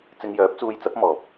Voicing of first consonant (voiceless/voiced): voiceless